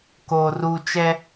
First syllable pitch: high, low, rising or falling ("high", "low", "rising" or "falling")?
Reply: low